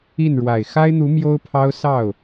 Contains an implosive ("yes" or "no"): no